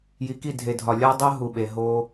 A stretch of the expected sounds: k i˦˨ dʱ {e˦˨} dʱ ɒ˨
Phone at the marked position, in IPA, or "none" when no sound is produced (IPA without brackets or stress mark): e˨